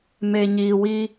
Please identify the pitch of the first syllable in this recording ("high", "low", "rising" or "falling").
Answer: low